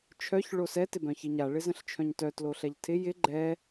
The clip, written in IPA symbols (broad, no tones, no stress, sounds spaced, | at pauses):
t͡ʃʰ œ ç ɭ o s ɛ t ɪ b œ̃ ç i ɲ a ɭ ɪ z ə̃ ɬ t͡ʃʰ œ̃ ɲ t œ t l o ɬ ɛ ʎ tʰ ɪ j ɪ ɡ͡ǃ ɛ